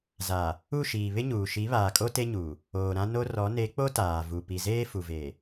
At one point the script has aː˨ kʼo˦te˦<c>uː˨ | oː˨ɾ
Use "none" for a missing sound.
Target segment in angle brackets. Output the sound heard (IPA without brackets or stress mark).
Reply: ɲ